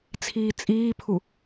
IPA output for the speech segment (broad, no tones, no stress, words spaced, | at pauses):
t͡sʰiːt͡sʼiːpʰu